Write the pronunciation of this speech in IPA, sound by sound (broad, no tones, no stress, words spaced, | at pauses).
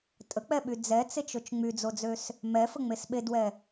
tʼək͡pɛɓy d͡zɛt͡set͡ʃot͡ʃ ŋ͡myd͡zod͡zøs | mɛfəŋ͡mes ɓedwɛ